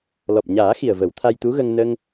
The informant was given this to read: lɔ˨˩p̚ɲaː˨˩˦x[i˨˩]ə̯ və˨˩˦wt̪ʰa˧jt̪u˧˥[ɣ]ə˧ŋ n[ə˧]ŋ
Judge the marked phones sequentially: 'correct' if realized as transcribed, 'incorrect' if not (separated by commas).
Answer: correct, correct, correct